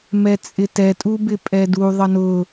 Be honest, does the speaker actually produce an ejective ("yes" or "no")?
yes